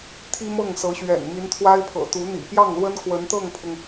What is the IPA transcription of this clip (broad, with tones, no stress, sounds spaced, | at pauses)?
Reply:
t̪ʰ i˥ m ɤ˥˩ ŋ s ɤ˧˥ ɕ ɥ ɛ̰˨˩ n m i˧˥ n t̪ʰ w a˥ ɪ̯ pʰ ɤ̰˨˩ t̪ u˧˥ n̪ ḭ˨˩ p j ɑ˥˩ ŋ l w ə˥ n k w ə˧˥ n t̪ ɤ˥˩ ŋ pʰ ʊ˩ ŋ